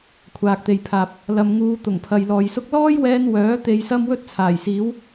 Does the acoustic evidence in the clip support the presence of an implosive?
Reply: no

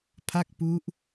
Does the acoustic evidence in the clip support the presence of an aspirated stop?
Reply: yes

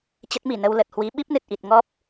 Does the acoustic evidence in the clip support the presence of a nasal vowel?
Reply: no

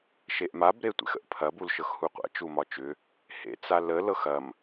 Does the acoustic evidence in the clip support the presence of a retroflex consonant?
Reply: no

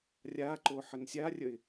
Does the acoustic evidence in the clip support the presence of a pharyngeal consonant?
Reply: yes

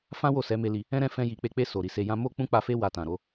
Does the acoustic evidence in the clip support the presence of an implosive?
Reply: no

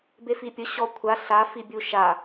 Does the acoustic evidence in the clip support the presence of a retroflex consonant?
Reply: no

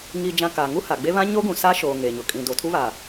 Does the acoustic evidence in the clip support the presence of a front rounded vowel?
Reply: no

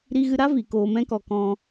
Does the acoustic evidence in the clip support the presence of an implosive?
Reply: no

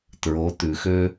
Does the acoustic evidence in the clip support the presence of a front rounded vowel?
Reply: yes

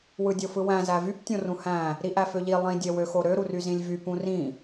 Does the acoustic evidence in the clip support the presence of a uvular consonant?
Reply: no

